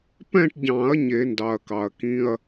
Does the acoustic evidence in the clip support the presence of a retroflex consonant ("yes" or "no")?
yes